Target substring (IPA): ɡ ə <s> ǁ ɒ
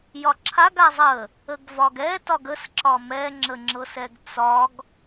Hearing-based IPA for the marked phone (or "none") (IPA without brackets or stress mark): s